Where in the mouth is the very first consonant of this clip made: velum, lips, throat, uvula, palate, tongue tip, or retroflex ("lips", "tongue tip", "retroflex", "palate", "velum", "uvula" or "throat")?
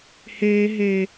throat